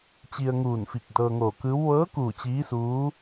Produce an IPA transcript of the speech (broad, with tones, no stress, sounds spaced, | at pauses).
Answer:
t͡ɕ i˧ ə̯ ŋ uː˧˩ n f i˧˩ k̚ d ɤː˧ ŋ oː˧˩ k ɯː˧˥ w ʋ ɤː˧˥ k uː˧˩ t͡ɕ iː˧˥ s uː˧˥